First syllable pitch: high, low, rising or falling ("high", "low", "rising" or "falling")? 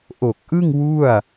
low